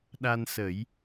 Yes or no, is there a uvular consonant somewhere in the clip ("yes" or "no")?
no